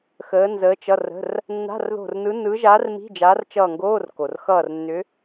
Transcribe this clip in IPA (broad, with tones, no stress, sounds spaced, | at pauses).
x əː˧˥ n z əː˧˥ t͡ʃ ʌ˧˥˧ r ə̤˧˥˧ r | nː a̤˧˥˧ r ð o̤˦˨ r n ɯ˧˥ n ɯ˧˥ ʒ a˧˥ r m i̤˧˥˧ d͡ʒ a˧˥ r t͡ʃ ʌː˦˨ ŋ ɡ oː˧˥˧ r k o˨˩ r x ʌː˦˨ r nː ʏ˧˥